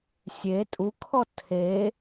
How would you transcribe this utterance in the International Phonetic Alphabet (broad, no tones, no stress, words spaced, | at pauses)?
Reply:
sʲe tʼukʰɔ tʰe